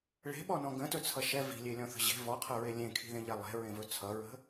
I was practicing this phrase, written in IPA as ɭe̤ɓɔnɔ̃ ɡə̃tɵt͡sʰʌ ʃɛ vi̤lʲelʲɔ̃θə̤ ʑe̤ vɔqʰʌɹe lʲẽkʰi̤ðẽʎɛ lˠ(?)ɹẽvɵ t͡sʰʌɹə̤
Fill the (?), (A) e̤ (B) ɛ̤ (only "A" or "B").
A